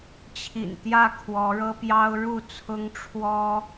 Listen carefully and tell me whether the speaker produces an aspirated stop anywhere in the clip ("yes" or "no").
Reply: yes